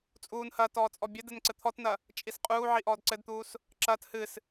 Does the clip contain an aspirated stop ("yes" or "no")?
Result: yes